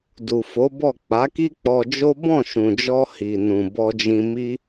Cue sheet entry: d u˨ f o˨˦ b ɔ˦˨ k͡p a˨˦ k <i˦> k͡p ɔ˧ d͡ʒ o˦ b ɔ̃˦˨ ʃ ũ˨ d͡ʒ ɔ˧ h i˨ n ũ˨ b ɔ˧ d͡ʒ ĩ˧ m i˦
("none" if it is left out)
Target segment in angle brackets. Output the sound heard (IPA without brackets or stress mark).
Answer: i˦